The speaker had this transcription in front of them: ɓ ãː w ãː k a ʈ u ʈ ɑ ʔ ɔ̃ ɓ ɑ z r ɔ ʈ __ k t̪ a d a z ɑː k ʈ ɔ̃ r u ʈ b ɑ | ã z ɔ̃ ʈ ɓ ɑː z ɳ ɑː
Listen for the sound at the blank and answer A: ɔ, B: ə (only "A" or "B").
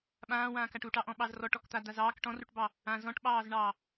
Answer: A